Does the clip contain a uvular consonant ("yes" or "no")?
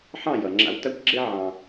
no